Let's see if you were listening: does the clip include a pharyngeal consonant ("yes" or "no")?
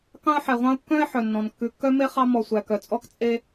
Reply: yes